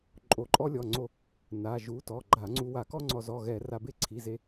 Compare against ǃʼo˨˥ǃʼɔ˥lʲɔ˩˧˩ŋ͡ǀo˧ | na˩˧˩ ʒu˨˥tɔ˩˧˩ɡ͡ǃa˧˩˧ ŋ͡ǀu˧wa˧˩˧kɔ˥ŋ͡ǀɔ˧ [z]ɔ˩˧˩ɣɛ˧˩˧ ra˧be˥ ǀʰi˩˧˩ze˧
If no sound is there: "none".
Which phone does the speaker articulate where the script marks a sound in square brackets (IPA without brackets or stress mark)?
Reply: z